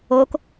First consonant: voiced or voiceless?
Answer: voiceless